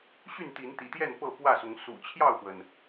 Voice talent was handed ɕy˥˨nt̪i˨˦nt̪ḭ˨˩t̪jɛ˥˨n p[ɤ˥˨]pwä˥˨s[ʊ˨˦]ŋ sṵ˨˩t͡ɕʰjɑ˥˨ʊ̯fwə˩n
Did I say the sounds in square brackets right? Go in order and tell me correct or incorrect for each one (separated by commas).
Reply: correct, correct